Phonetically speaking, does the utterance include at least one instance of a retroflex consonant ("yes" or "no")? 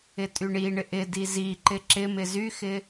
yes